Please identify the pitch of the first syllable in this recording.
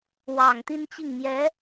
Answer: low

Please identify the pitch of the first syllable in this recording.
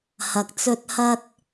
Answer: low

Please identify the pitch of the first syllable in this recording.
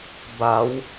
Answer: rising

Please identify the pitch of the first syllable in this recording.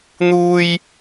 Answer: high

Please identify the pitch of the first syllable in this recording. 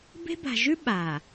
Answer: high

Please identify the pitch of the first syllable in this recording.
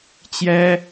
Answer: high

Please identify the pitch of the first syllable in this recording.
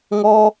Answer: high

